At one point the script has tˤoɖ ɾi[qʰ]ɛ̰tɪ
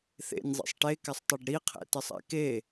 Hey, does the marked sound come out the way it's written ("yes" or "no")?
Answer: yes